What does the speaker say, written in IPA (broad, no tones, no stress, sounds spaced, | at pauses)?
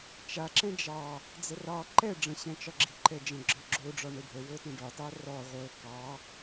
t͡ʃ a ǁ ɛ̃ d͡ʒ ɑ | d͡z ə r ɑ ǃ ɛ ɖ͡ʐ ə̃ ɕ ɛ̃ t͡ʃ ɒ ɡ͡ǁ i ǃ ɛ d͡ʒ ə̃ ɡ͡ǁ ɒ ɡ͡ǁ o ɖ͡ʐ ɒ ɳ ə ɖʱ ə w o t ə̃ ɖ ɒ t ɑ r ɔ ʁʷ ɤ k ɑ